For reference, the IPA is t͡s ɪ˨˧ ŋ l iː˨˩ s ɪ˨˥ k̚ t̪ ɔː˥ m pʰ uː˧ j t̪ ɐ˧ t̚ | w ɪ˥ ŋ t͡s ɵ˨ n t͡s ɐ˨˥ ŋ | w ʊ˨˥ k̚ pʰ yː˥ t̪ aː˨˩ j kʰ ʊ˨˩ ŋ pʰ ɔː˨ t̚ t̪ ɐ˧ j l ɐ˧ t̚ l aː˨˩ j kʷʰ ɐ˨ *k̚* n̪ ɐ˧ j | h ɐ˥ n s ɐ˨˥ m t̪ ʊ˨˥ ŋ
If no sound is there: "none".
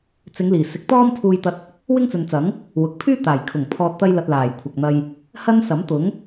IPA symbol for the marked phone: k̚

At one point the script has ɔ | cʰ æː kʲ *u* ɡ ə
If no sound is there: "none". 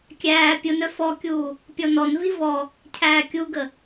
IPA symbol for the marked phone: u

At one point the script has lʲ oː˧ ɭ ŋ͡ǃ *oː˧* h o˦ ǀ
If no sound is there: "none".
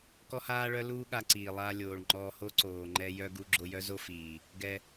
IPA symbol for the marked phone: ɔː˧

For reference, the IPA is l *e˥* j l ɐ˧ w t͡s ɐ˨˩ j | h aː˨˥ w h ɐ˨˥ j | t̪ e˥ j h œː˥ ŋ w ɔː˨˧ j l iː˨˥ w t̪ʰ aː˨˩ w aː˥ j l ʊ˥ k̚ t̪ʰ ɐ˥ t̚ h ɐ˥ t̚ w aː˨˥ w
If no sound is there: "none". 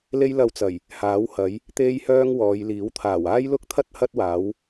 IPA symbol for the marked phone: e˥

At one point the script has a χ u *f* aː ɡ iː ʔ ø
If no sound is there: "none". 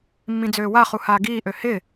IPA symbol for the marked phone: h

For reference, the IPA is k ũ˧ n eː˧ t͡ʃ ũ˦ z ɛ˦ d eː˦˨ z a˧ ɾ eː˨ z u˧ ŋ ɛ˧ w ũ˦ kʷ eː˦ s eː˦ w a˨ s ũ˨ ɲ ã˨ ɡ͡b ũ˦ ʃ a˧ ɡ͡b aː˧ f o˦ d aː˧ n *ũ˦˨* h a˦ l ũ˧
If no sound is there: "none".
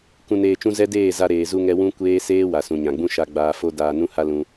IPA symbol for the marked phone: ũ˦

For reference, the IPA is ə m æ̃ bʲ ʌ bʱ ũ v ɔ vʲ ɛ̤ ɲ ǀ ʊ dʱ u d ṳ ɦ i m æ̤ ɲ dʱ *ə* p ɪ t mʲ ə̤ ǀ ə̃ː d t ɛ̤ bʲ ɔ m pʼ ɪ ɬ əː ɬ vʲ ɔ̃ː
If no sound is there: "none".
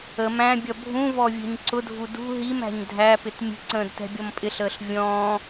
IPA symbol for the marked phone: æ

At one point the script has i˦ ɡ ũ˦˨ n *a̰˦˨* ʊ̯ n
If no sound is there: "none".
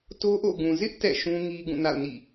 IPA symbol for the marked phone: a̰˦˨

